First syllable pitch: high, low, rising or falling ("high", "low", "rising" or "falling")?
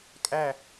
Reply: falling